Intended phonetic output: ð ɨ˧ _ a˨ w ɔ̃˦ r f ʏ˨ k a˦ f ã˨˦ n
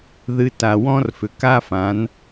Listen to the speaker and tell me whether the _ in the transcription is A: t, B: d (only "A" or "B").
A